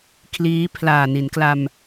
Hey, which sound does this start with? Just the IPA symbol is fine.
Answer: kʰ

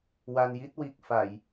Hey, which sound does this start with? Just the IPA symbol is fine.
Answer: w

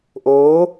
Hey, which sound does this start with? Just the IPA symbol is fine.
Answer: ʔ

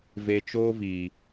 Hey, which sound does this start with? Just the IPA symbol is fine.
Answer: v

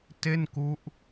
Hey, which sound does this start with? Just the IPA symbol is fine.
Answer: t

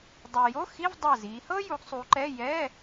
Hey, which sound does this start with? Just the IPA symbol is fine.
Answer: dˤ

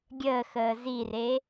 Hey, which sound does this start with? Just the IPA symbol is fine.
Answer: ɡʲ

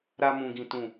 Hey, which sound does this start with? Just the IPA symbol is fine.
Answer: ɾ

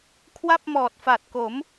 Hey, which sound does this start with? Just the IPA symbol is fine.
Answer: kʰ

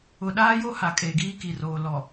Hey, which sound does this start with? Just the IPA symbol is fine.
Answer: ʊ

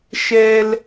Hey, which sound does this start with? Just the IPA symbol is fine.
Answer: ʃ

